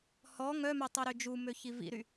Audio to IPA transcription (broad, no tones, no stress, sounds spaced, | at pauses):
h ɔ ŋ œ m œ tˤ œ ɾ ø d͡ʒ u m ø ç i v ḭ ɾ y